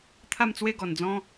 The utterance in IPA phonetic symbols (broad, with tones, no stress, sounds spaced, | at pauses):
t̪ʰ a˥˧ m t͡s w e˥˧ ɡ ɔ˨˩ n d͡z ɔ̃˦